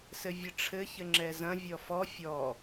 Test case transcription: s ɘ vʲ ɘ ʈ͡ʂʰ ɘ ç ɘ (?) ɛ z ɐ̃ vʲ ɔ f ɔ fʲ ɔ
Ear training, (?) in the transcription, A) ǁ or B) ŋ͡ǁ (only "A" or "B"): B